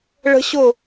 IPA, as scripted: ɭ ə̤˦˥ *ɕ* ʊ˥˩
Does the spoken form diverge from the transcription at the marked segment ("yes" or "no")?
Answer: no